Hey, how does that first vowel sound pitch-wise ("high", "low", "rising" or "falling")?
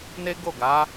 high